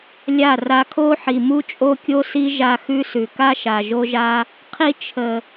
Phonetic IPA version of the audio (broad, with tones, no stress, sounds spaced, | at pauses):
lʲ a˦˨ r a˧ kʰ o˦ ħ i˨ m u˦ t͡ʃʼ o˦ kʲ o˦ s i˦ ʒ a˧ x ʉ˦ s ʉ˨ k a˦ ʃ a˨ ʒ o˦ ʒ a˦ | qʰ i˧ t͡ʃʰ ə˨